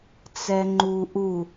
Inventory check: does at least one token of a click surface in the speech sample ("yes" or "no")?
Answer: yes